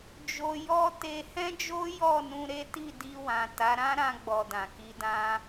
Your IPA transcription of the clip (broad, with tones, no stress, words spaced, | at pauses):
d͡ʒo˧jɔ˦ te˧hɛ̃˦d͡ʒo˦ jɔ˦˨nũ˧ ɾe˦ti˦˨di˧wã˨ ta˨˦ɾã˦ ɾã˧ɡ͡bɔ˨ dã˨ki˧dã˦